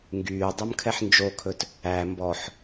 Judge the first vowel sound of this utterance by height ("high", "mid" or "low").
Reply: high